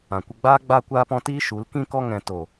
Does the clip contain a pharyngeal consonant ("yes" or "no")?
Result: no